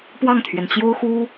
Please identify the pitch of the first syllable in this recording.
falling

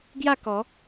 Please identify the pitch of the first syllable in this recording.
falling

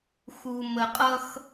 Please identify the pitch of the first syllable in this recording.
low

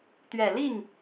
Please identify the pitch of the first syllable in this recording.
low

